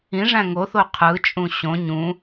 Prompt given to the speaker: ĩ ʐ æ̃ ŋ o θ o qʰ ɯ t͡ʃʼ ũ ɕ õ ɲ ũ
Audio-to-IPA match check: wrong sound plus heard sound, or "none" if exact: none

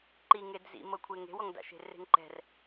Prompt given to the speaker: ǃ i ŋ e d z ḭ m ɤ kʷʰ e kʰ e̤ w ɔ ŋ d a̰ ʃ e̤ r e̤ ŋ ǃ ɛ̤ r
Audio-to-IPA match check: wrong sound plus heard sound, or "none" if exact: kʰ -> ŋ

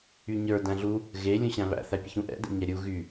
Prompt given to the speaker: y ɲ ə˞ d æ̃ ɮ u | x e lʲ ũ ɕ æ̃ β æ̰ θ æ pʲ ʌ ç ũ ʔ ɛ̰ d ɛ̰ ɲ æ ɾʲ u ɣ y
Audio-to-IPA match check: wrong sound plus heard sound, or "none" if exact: x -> ɣ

